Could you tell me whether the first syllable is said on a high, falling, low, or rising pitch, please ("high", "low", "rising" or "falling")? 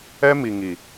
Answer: high